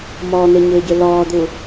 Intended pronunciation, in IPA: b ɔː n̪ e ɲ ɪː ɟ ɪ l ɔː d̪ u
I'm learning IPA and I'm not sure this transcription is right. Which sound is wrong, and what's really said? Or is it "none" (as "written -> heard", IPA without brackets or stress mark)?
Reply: b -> m